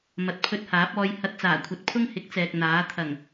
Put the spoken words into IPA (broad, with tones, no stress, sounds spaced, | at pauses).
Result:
m ɐ˨ t̚ pʰ ɵ˧ t̚ h aː˨˥ p̚ ɔː˧ j h ɐ˧ t̚ t͡s aː˨˩ kʷʰ ɐ˨ t̚ pʰ ʊ˥ ŋ h ɪ˨˥ k̚ t͡s ɛː˨ k̚ n̪ aː˨˥ t̪ʰ ɐ˨˩ ŋ